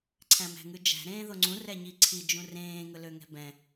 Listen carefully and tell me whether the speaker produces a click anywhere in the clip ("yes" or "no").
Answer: yes